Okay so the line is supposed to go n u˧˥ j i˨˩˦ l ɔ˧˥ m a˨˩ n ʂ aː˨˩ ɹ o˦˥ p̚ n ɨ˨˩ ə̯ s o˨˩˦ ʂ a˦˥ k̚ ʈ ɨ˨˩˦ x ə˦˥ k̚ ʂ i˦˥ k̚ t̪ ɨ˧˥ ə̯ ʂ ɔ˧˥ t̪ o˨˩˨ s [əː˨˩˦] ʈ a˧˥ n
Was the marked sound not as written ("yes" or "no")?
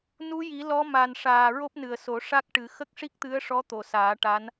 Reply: yes